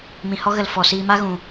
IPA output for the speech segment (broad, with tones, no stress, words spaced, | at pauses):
mĩ˨hɔ˦ɣə˨l fɔ˨ siː˧ma˦ ɣũ˨